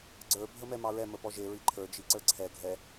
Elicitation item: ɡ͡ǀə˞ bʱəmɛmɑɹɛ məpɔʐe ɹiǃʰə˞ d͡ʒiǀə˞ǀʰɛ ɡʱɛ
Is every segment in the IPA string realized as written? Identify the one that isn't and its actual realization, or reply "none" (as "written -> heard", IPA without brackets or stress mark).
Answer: ʐ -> ʒ